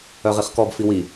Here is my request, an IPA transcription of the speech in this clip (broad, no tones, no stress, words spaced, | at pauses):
œʁiχkɔb fiwi